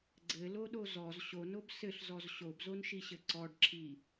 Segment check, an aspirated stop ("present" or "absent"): present